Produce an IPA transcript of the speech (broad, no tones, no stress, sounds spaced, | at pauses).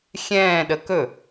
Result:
xʲ ɛ̃ː ɗ ə k ɵ